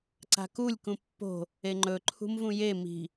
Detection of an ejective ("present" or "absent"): absent